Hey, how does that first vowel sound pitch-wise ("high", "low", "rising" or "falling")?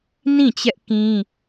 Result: falling